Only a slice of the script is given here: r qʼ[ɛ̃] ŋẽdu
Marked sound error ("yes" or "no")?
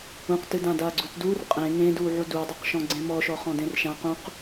yes